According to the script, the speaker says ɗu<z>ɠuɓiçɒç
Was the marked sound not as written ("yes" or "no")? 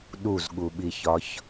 no